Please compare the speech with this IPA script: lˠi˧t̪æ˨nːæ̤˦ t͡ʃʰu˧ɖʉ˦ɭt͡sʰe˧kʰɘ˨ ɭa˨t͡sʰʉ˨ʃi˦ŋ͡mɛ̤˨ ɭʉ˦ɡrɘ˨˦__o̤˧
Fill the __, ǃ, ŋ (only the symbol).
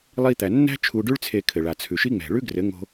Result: ŋ